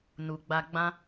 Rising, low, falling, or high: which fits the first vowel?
low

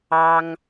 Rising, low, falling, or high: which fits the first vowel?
high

